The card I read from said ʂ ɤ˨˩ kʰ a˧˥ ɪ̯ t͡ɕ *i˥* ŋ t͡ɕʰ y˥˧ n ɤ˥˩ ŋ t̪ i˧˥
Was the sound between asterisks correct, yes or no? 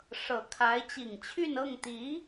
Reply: no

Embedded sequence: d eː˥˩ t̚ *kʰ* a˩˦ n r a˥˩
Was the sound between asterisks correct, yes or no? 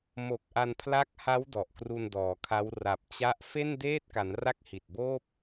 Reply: no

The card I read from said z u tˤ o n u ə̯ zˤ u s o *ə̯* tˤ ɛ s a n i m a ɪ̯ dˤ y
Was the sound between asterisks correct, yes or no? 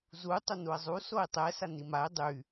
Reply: no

